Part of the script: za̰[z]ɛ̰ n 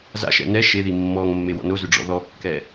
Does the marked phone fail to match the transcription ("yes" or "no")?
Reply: yes